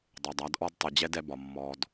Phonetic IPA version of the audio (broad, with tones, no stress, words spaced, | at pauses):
dˤɐ˨dˤa˨˦dʔɔ˦d tˤɯ˨ d͡ʑɛ˦dɛ˧bɒ˨ mːɔ˧d